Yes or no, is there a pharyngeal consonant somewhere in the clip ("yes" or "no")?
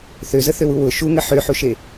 yes